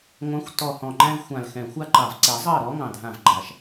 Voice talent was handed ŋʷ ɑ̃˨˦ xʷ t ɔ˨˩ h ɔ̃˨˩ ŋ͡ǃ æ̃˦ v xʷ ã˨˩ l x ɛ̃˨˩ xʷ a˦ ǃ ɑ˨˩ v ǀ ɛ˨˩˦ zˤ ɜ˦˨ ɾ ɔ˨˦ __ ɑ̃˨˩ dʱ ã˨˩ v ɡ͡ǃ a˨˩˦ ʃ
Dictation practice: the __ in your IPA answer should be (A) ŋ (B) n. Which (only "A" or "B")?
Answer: A